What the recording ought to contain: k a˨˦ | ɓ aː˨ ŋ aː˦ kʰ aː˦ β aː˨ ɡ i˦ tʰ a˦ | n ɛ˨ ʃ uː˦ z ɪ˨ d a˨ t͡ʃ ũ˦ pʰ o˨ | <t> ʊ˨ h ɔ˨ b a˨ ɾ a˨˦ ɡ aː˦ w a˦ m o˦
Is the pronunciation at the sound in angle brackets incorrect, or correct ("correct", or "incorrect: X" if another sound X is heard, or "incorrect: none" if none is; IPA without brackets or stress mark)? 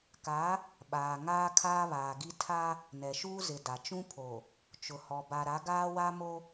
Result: incorrect: t͡ʃ